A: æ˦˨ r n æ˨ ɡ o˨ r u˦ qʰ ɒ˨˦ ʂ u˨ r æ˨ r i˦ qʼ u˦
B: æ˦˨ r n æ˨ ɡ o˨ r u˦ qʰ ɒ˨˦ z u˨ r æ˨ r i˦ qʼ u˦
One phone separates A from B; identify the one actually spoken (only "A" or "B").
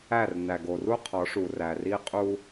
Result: A